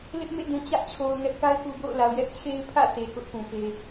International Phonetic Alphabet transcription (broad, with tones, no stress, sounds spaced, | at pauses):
l ɪ˦ ʔ m ḛ˦˨ d ũ˨ t͡ɕ ä˦ ʔ t͡ɕʰ o˨ ʊ̯ ŋ ɛ˦ ʔ k a˦ ɪ̯ k u˨ b o̰˦˨ ʊ̯ l a˨ ʊ̯ j ɛ˦ ʔ t͡ɕʰ e˦ ɪ̯ pʰ ä̰˦˨ t e˨ k ʊ˦ ʔ p ũ˨ p e˦